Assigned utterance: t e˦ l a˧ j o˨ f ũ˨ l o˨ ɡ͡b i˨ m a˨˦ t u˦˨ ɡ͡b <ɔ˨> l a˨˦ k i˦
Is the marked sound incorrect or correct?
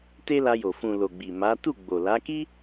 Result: incorrect